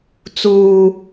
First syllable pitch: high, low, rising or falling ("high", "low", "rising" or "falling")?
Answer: high